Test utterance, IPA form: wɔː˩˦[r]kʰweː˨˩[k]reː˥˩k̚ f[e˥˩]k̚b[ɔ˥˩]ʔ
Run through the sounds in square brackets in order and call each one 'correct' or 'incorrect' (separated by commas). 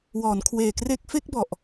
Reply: incorrect, correct, correct, incorrect